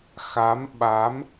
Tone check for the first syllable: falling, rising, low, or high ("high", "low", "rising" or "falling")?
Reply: rising